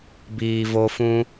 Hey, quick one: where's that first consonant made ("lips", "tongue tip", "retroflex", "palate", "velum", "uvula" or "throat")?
lips